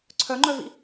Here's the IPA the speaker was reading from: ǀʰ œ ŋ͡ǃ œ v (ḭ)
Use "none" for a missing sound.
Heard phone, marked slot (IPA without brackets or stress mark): ḭ